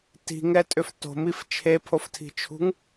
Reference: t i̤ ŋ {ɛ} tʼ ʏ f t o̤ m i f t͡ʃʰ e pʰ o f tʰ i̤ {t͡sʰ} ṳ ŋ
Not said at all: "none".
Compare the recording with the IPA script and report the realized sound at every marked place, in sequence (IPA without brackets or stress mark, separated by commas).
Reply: ɛ, t͡ʃʰ